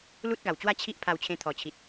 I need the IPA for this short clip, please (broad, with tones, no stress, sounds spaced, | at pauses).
l u˦ t̚ ɡ a˨˩ w t͡ɕ w a˥˧ t͡ɕʰ i˦ ʔ pʰ a˧ w t͡ɕʰ ẽ˧ t̪ʰ ɔ˨˩ t͡ɕʰ i˨ t̚